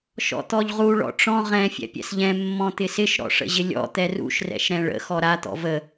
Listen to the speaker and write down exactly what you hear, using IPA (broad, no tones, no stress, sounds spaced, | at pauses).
ʃ ɔ̰ t̪ ɔ ʎ ʁ u ɭ ɔ̰ ʈ͡ʂ ɔ̃ ʁ ɛ̃ fʲ ɛ̰ pʲ ɛ̰ s ʎ ɛ̃ mː ɔ̃ t̪ ɪ s ɪ ʃ ɾ ɔ̰ ʂ ə̰ ʑ ɪ lʲ ɔ̰ t̪ ɛ r ṵ ʃ r ɛ̰ ʃ ɾ ɛ̃ ɭ ə̰ x ɔ ɾ a t̪ ɔ̰ v ə